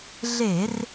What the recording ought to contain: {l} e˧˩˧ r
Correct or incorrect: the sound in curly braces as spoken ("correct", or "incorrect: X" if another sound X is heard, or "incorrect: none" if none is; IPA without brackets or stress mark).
incorrect: ɮ